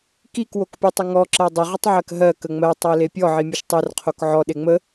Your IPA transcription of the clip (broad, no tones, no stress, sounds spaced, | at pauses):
k i k w o k pʲ o tˤ ə ŋ ɔ ǁ ɜ dˤ ə ʁ ə tˤ ʕ ɜ k ɦ ɜ k ə ŋ͡m ɜ tˤ ɜ l e pʲ ɔ ʕ i mʲ o ʃ tˤ ɜ r qʰ o k ʕ ɔ ɗ e ŋ͡m ə